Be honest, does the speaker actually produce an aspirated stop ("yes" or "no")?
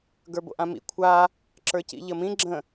yes